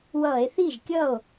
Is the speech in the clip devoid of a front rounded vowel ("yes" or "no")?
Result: yes